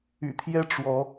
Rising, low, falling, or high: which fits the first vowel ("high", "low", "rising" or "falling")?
low